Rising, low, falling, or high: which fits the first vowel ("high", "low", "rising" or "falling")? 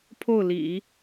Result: falling